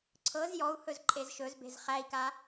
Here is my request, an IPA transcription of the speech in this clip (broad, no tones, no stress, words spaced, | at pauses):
ǀʰɤz jɔu̯hɵz ǃʼezʃɵzbe̤z χæi̯ka